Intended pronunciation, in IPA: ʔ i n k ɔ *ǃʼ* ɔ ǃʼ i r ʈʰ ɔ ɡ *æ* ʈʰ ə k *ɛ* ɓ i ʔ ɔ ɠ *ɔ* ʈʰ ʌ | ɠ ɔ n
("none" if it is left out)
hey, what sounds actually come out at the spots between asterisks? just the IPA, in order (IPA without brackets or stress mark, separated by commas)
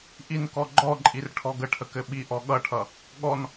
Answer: ɡ͡ǃ, ə, ɘ, ʌ